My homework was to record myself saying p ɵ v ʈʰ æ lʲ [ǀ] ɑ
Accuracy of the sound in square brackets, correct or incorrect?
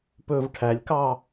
incorrect